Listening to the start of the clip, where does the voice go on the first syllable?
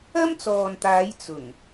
high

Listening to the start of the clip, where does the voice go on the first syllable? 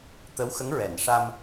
rising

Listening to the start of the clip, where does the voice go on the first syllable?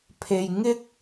low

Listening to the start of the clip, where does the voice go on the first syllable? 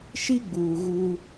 high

